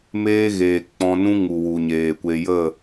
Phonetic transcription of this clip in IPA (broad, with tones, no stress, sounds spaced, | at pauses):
m eː˦ ɣ eː˨ k͡p ɔ̃˧ n ũ˦ ŋ u˨ w u˨ ɲ eː˨ kʷ e˧ j ə˦˨